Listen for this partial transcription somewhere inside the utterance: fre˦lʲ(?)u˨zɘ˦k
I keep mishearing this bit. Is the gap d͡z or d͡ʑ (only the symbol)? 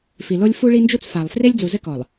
d͡z